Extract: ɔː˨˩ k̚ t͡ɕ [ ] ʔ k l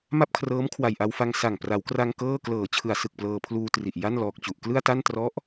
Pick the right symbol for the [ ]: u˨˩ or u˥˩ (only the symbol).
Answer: u˨˩